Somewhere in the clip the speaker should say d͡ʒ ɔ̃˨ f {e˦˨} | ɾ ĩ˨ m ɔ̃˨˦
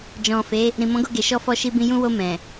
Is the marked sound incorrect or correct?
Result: incorrect